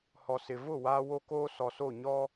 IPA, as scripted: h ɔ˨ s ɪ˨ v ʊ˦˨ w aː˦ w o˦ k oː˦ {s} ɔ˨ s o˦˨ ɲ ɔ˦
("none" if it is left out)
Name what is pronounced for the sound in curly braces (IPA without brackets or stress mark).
s